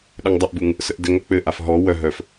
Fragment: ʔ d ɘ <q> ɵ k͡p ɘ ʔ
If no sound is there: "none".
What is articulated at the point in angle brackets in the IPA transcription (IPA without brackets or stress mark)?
ŋ